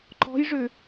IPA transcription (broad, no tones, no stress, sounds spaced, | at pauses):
ǃ ɔ̤ j ʐ ʏ